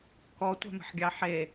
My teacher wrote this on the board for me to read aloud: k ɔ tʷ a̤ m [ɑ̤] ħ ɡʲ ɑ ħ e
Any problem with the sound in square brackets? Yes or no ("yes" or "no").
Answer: yes